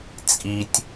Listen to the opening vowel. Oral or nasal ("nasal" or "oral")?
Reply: oral